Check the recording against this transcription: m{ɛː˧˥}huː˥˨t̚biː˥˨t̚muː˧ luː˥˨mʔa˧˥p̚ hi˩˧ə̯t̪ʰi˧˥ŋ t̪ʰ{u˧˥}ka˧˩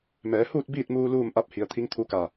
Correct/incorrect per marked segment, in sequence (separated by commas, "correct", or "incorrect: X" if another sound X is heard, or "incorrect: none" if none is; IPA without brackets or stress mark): incorrect: ɛː˩˧, correct